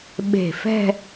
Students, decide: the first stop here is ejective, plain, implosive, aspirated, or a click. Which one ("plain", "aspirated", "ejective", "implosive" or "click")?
implosive